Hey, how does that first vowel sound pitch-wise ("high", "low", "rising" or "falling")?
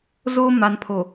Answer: high